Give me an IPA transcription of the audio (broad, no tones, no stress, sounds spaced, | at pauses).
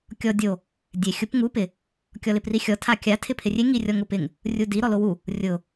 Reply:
kʲ ɔ dʲ o | dʲ e xʲ ʊ p ŋ u p ɪ | kʲ ɔ l ɪ p r i xʲ ɔ tʰ a kʲ a tʰ ɪ pʰ ɪ rʲ e ŋ i rʲ ɔ ŋ ʊ p ɪ ŋ | rʲ u d i ɾ ɔ l o w u | rʲ ʊ